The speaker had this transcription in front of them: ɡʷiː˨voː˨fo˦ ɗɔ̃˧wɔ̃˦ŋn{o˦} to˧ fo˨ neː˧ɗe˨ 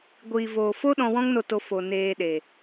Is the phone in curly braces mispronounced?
yes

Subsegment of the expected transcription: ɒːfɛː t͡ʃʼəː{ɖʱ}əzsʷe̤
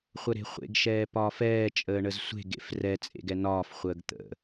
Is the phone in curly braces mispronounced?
yes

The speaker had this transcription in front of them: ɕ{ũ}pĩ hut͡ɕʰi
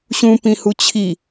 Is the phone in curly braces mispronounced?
no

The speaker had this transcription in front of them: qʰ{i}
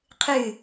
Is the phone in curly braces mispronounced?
yes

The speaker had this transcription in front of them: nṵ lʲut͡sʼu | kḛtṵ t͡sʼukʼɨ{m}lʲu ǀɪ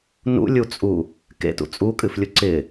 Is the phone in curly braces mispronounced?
yes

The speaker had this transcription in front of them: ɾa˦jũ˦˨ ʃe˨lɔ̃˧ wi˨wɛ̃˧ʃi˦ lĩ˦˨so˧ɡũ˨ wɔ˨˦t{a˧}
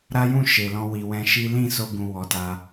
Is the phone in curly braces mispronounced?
no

